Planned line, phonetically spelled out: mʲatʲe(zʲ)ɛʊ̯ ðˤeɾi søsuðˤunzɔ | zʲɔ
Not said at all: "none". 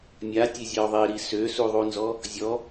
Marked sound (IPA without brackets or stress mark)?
zʲ